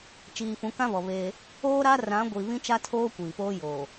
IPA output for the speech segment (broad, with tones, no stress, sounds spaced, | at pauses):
t͡ʃ iː˨ f ũ˨˦ k ã˦ β ɔ˨ β eː˦ | oː˦ ɾ a˦ r ã˨˦ ɡʷ i˨ β ĩ˦ t͡ʃ a˦ tʰ oː˦ kʷ iː˨ p oː˦ j oː˨